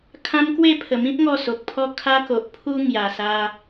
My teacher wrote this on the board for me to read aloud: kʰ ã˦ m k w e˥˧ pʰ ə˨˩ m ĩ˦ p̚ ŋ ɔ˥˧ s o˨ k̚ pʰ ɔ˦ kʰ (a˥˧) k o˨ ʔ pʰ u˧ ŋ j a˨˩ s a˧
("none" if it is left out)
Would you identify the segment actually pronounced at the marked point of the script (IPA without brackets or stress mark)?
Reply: a˦